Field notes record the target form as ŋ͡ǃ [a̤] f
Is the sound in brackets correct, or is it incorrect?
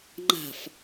correct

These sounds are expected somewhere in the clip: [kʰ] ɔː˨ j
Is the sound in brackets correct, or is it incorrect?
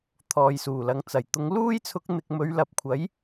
incorrect: t̪ʰ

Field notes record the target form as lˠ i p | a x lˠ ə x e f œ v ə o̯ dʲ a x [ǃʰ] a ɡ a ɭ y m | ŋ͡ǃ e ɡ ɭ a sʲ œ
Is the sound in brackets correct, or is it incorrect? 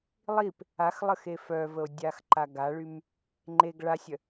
incorrect: ǃ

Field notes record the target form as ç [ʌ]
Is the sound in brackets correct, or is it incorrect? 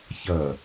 correct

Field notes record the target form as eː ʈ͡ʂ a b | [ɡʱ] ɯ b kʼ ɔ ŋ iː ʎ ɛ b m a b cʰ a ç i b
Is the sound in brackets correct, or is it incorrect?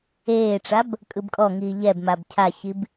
incorrect: kʼ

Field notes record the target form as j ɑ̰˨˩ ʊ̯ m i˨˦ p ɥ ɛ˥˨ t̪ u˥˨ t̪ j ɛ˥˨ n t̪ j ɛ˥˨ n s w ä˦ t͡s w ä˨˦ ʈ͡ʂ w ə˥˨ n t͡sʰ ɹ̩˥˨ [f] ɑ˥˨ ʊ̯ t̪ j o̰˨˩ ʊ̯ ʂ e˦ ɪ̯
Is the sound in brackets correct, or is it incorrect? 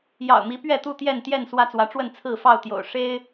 correct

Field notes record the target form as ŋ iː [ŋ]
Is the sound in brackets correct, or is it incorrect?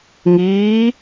incorrect: none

